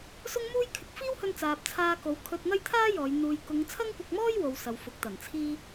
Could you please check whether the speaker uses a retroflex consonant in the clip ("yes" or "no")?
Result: no